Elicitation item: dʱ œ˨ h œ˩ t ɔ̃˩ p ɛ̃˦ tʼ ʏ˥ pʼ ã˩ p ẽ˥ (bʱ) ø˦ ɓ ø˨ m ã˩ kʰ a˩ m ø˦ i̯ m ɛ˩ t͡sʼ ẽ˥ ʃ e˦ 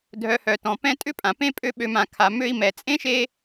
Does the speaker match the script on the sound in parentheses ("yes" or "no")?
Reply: no